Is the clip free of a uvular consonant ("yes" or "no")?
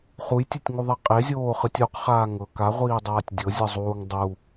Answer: no